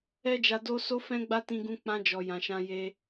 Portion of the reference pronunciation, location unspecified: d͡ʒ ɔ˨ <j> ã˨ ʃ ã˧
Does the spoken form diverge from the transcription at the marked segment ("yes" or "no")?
no